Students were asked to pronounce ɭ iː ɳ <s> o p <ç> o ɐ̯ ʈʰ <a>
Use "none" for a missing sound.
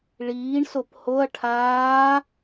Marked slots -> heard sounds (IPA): s, h, aː

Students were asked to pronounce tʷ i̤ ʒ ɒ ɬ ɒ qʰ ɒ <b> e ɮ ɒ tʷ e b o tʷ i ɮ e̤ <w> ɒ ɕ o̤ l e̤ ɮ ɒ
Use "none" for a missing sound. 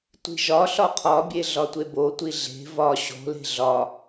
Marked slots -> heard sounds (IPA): bʲ, v

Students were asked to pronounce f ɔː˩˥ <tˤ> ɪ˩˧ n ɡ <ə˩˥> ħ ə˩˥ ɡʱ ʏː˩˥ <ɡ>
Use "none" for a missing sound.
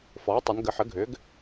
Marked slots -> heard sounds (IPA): tˤ, ə˩˥, ɡ

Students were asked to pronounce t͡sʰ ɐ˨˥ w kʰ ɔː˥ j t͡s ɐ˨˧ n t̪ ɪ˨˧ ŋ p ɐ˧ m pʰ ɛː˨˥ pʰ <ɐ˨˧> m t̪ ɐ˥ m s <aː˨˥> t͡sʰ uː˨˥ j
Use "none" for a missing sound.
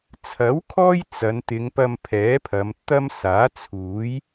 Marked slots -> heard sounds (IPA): ɐ˨˧, aː˨˥

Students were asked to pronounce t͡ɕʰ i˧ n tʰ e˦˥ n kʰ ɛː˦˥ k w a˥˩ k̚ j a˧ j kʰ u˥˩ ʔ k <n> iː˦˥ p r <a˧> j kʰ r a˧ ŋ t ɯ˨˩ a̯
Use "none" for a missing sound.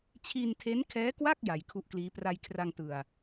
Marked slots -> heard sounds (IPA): l, a˧

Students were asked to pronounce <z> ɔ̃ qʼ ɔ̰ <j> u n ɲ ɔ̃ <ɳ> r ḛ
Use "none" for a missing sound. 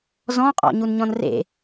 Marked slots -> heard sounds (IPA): z, ɲ, n

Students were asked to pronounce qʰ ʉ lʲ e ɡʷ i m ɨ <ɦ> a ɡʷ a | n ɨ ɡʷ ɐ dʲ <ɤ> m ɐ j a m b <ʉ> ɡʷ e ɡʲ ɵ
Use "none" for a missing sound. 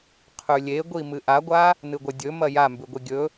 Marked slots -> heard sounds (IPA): ʔ, ɵ, ʉ

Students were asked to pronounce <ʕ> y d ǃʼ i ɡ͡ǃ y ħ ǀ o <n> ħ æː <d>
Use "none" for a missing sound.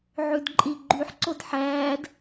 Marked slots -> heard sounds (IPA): ʕ, d, d

